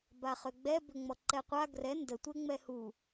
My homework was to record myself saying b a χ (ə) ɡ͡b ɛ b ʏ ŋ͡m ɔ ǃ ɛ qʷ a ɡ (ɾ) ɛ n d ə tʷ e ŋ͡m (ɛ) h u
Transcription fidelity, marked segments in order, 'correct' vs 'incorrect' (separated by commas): incorrect, incorrect, correct